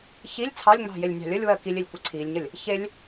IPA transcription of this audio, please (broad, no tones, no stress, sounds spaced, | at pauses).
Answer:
ç i lʲ t͡sʰ ɑ lʲ ŋ͡m ɑ̤ j e lʲ nʲ ɑ̤ lʲ ə lʲ w ɜ k i lʲ e lʲ kʷ e ǀʰ i lʲ ɲ ə lʲ | ç e lʲ